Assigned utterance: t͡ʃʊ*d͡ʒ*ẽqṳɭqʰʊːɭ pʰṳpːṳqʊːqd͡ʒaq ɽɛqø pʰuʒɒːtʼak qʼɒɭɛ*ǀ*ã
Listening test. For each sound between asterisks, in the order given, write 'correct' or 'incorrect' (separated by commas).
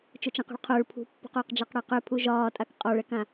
incorrect, incorrect